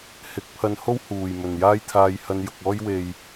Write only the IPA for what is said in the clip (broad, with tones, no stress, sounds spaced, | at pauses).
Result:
h ɪ˨˥ k̚ pʰ ɐ˧ n h o˥ w h uː˨˩ j m ɵ˨˩ n j aː˥ j t̪ʰ aː˧ j h ɐ˧ n j ʊ˨ k̚ ɔː˥ j w e˨ j